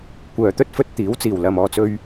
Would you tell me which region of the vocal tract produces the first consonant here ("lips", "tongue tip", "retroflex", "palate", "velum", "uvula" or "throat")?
velum